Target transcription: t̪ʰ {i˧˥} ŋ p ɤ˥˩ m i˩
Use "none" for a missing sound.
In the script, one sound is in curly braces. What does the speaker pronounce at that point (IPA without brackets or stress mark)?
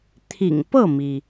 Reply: ḭ˨˩